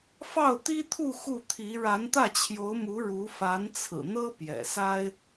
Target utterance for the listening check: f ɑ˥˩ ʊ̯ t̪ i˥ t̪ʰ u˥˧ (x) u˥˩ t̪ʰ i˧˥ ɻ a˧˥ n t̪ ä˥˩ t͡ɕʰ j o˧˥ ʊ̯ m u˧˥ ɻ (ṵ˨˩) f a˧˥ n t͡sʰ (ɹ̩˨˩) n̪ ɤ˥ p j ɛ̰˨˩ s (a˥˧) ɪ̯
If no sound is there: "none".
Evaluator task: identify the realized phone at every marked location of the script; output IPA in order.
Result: x, u˧˥, ɹ̩˨˩, a˥

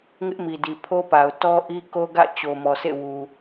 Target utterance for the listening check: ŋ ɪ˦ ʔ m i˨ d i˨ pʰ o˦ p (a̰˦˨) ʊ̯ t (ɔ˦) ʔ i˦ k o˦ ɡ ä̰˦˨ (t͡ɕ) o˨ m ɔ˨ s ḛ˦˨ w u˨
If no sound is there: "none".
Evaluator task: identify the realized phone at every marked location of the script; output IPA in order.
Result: a˨, ɔ˦, t͡ɕ

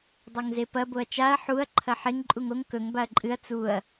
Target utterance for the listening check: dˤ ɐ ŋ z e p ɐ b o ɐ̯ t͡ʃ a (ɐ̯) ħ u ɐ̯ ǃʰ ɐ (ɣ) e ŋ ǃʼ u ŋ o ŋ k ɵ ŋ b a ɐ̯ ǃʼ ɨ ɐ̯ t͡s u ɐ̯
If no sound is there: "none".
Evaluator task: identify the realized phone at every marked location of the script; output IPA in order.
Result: ɐ̯, ħ

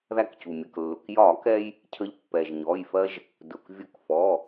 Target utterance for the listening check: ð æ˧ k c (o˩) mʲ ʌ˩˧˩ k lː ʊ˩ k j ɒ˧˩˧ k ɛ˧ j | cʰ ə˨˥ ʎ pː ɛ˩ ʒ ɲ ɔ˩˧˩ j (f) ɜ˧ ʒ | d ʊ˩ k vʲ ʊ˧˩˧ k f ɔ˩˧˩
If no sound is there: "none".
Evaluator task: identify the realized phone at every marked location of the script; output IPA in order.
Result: u˩, f

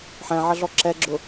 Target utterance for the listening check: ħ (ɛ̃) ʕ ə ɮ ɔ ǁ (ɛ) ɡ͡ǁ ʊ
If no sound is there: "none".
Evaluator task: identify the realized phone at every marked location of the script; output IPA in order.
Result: ɛ̃, ɛ

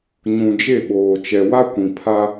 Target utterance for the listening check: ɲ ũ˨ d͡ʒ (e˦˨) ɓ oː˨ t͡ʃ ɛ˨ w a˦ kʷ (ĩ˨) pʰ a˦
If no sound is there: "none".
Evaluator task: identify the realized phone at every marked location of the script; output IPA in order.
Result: e˦˨, ĩ˨

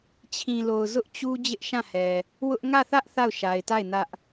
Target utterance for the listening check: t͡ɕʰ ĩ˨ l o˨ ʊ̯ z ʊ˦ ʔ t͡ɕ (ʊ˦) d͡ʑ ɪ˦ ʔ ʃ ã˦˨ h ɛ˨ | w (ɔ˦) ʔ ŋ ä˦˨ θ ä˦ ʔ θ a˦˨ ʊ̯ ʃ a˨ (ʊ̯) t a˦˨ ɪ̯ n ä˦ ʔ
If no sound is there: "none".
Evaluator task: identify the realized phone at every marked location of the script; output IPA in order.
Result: u˦, ʊ˦, ɪ̯

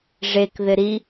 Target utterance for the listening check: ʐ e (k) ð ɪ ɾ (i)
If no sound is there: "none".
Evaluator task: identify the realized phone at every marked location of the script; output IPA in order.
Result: k, i

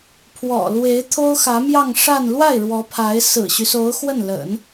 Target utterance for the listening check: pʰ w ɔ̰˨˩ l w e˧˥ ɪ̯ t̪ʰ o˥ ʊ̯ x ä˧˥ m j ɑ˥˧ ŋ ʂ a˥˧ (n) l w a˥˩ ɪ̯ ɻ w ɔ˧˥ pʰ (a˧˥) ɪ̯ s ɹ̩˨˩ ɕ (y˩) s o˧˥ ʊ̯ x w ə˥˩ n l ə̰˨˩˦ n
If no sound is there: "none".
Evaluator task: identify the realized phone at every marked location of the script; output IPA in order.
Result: n, a˧˥, y˦

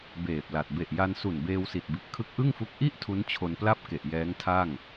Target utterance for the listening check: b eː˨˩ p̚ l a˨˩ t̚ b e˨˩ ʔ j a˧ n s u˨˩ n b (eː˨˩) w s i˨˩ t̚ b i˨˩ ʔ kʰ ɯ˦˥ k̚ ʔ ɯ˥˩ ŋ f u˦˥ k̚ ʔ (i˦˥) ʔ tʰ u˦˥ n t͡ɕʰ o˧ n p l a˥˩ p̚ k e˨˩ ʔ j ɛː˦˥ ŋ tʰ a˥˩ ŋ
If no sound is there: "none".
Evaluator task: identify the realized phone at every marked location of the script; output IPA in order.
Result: eː˧, i˦˥

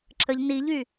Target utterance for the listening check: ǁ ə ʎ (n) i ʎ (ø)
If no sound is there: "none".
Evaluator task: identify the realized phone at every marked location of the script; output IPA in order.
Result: n, y

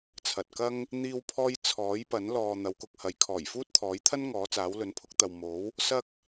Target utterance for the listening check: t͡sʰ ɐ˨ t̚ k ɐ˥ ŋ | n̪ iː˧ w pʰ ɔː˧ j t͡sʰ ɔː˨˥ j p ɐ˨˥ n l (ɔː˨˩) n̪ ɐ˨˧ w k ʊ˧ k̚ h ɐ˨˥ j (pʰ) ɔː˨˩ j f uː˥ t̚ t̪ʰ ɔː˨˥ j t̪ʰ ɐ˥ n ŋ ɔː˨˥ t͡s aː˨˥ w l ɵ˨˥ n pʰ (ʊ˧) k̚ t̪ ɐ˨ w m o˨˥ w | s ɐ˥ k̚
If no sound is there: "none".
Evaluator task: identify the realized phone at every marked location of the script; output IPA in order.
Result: ɔː˨, kʰ, ʊ˧

